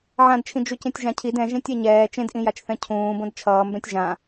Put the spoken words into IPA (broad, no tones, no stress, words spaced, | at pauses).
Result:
ʕãdt͡ʃʰĩ d͡ʒucẽtʲʒãcʰid ɛ̃ʒẽtʲ ɛɲɛː t͡ʃẽdʔĩjat͡ʃθɛ̃ cʰũːbõd t͡ʃʰʌːmbɛ̃tʲ ʒã